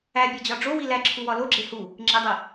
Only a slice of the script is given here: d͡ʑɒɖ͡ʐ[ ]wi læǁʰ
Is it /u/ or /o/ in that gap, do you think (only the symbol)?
o